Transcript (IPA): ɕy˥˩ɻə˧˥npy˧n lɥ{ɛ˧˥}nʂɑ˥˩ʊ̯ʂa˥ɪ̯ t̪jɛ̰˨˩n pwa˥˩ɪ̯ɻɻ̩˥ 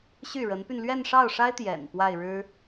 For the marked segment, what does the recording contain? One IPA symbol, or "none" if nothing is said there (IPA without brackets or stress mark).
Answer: ɛ˥˧